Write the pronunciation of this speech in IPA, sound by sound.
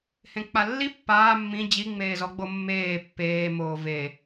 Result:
h ẽ k͡p a lː i pː aː mː ĩ d͡ʑ i ŋ͡m eː z ɔ ɡ͡b o mː eː pː eː m oː v e

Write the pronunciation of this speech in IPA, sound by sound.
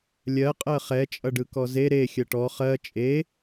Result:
lʲ ɜ qʼ ɜ χ ɛ t͡ʃʼ ʌ ɖ ɯ k ɔ z e ɾ e xʲ ɜ ʈ ɔ χ ɜ t͡ʃʼ e

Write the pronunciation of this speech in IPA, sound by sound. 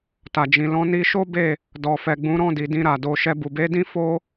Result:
t a˨ d͡ʒ ĩ˨ l ɔ̃˨˦ n i˧ ʃ o˦ b e˦˨ | d ɔ˨ f ɛ˨ ɡ͡b ũ˨˦ ɾ ɔ̃˦˨ d i˨ d ĩ˧ ɾ a˨ d o˨ ʃ ɛ˧ b u˨ b e˨˦ d ĩ˦ f o˦

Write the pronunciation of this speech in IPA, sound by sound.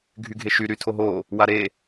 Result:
ɡʱ y ɡʱ e ʃ y ɾ y tʰ o ɦ o | w a ɾ e

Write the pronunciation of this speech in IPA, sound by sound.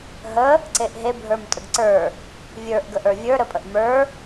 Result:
ɦ ə | ǀ e ʔ ɦ e bʱ ə˞ m tʼ ə ɡ ǀ ə˞ | vʲ ə˞ ʔ ɡ ə ʔ ə˞ vʲ ə˞ ɾ ə pʼ ə ʔ m ə˞

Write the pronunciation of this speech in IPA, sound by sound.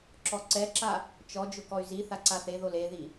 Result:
ǁ ɔ ǀ ɛ ǁ a | t͡ʃ ɔ d͡ʒ ʊ k ɔ y̯ z i θ a ǀ a θ e ð o l e ð i

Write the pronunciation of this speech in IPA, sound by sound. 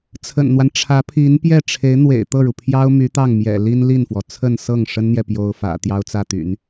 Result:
t͡sʰ ə̰˨˩ n n̪ w a˦ n ʈ͡ʂʰ ä˧˥ pʰ i˧˥ n p j ɛ˥˩ ʈ͡ʂʰ e˧˥ ɪ̯ n̪ w ḛ˨˩ ɪ̯ t̪ ɤ˥˩ ɻ u˩ pʰ j ɑ˥ ʊ̯ m y˧˥ t̪ ɑ˥˩ ŋ m j ɛ̰˨˩ l i˥ n l i˥˩ n f w ɔ˩ t͡sʰ ə˥˧ n s ɤ˥˩ ŋ ʂ ə˥ n n̪ j ɛ˨ p j o˥ ʊ̯ f ä̰˨˩ t̪ j ɑ˥ ʊ̯ t͡s ä˥˩ t̪ y̰˨˩˦ n

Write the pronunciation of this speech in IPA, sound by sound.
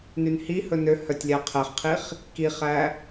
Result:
n y n h i h ɵ n ø h œ tʲ lʲ æ qʰ ɛ χ qʰ i χ | k i χ æ

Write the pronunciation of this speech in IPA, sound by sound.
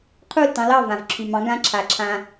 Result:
qʰ u˥˩ l t ɑ̃˧ l ɑ˥˩ v ã˩ v ǁʰ y˩ m ɑ̃˩˥ ɡ ã˧ ǁʰ a˩ ǁʰ ã˩

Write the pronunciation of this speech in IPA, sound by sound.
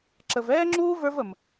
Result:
ǁ ə˨ v ɛː˦ ŋ͡ǁ uː˦ v ə˞˦ v ə˨ m

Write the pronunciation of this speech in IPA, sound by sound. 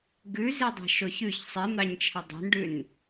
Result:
ɡ ʉ z i dˤ ɑ̤ ʃ o ç ʉ ç sˤ i n̪ ɑ ɲ t͡ʃʰ ɛ dˤ o̤ n ɖ ʉ n

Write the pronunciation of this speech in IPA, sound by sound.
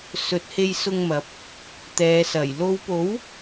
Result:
s ɵ˨˥ t̚ h e˧ j s ʊ˧ ŋ m ɐ˨˥ p̚ | t̪ ɛː˨˧ s ɐ˨˩ j l o˨˧ w p o˨˥ w

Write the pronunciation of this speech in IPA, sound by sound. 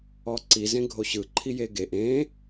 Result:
ɔ ǀ i z ẽ ɡʱ o ɕ ɯ ǃʰ i j e ɡ e ʔ ẽ

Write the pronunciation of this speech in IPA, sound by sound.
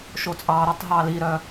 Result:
ʃ o t͡sʼ ɑ ɾ o tˤ ɦ ɑ l i ɾ œ

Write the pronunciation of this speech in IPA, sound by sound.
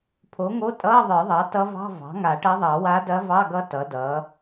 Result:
pʰ o˩˥ ŋ o˧˥˧ tʼ ʌː˧˥˧ ðˤ ə˞˨˩˦ ðˤ ɑ˩˥ t ʌ˧˥ v ɑ̤˧˥˧ v ɑ̤˩˥ ŋ a˨˩˦ ʈ ɐ˧˥ ðˤ ɑ˨˩˦ w a˧˥ d ɐ˧˥ v ɑ˧˥˧ ɡ ʌ˧˥ t ʌ˩˥ d ʌː˩˥

